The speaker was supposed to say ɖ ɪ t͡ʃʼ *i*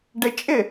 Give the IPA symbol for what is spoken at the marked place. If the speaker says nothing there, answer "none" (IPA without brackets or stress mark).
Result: ɪ